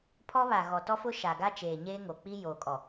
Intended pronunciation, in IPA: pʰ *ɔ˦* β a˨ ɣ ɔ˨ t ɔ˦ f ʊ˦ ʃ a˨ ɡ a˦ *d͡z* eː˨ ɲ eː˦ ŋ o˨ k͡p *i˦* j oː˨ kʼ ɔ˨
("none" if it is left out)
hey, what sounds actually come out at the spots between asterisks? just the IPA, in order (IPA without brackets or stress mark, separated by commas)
ɔ˦, t͡ʃ, i˦